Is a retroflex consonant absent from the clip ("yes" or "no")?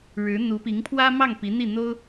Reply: no